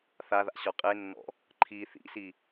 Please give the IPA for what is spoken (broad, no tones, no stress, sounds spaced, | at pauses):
θ a ð a̰ ɕ ɔ qʼ e nː ɔ̰ | ǃʰ i θ ḭ s i